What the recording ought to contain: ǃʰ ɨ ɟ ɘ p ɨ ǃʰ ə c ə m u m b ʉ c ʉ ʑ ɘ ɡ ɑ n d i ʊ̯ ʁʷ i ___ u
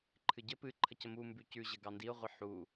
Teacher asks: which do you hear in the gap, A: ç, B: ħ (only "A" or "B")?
B